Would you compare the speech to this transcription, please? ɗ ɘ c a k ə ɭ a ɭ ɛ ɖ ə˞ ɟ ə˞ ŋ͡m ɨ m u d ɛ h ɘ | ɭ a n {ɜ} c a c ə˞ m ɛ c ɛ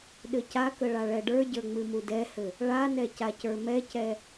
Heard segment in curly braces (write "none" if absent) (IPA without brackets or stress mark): ɛ